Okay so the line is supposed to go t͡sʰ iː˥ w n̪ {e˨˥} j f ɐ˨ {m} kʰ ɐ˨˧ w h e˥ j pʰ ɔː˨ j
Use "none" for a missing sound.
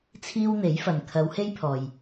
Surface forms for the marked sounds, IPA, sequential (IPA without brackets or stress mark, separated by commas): e˨˥, n